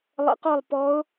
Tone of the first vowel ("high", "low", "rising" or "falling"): rising